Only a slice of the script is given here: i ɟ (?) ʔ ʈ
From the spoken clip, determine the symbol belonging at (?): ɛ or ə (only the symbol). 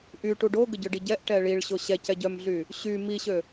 ɛ